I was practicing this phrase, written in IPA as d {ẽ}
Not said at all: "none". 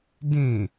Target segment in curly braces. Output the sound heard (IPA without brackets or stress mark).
ẽ